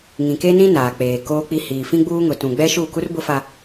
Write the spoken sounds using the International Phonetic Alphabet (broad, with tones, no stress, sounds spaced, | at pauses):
ŋ ĩ˨ k e˦ n ĩ˦ n aː˨ k͡p eː˨ k oː˦ k͡p i˦ h iː˨ f ĩ˦ ɡ͡b uː˦ ŋ ʊ˨ t ũ˨ ɡ͡b ɛ˦ ʃ u˦˨ k u˦ r b ʊ˦ f a˦